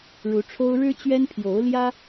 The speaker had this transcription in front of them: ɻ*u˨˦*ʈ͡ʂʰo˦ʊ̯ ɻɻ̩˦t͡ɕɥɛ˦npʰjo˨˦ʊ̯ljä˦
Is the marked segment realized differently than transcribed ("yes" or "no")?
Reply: no